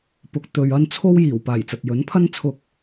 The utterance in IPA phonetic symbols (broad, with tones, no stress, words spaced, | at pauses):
pʊ˨˥k̚ t̪ɵ˨ɥɐ˥n t͡sʰo˥wjiː˨˩w paː˨˩jt͡sɐ˨t̚jɵ˨˥n pʰɐ˥nt͡sʰʊ˧k̚